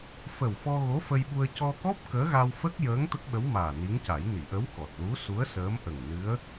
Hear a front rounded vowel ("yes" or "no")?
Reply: no